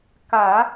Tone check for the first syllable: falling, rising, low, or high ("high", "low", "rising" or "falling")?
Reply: low